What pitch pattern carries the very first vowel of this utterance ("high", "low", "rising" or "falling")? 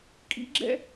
rising